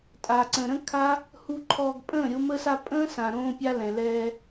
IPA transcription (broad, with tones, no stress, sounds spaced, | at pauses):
tʼ a˨ ǀ ə̃˨ ɾ ə̃˦ kʰ a˦ | h u˧ ǃʰ ɔː˧ ɡ pʼ ə̃ː˦˨ ɾʲ o˧ m ə˧ s a˧ pʼ ə̃ː˦ s ã˨ ɾ õː˧ pʲ a˧ l ɛ̃˨ l ɛː˧